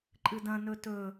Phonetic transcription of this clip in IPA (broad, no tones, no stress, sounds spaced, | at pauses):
ǃʼ ɨ d ɐ̃ n ɵ t ɵ